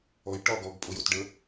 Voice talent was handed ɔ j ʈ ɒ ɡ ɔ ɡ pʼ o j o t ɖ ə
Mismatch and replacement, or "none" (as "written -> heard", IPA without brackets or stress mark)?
none